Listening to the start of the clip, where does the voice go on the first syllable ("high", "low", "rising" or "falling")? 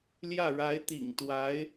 falling